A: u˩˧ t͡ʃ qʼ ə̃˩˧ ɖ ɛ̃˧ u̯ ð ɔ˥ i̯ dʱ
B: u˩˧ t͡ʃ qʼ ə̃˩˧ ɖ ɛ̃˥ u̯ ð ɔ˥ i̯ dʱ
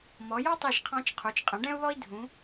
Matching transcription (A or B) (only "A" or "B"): B